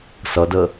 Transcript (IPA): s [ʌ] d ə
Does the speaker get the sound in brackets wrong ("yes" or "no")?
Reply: no